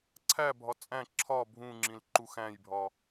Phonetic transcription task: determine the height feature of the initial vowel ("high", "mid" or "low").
low